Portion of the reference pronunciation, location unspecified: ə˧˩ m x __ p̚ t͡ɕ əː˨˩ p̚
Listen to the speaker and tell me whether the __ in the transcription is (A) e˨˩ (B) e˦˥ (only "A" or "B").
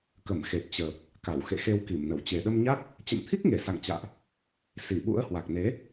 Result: A